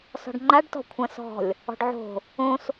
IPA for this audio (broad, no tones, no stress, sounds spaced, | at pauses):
s ɔ̤ ɖ ŋ͡ǃ a ɖ t ɔ̤ kʷʰ ɐ̃ s ɔ̤ lʲ | ɔ̤ ɖ ʕ o̤ | õ s